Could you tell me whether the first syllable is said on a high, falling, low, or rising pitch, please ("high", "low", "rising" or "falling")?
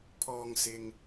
low